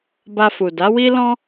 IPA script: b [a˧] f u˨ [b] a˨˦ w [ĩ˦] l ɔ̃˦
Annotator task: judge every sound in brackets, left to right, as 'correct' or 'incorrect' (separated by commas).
correct, incorrect, incorrect